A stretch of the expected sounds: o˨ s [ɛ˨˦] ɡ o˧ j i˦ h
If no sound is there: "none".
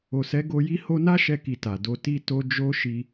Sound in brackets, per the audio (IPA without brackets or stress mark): ɛ˨˦